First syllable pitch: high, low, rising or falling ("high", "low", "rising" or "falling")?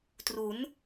rising